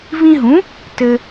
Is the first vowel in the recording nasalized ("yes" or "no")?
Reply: yes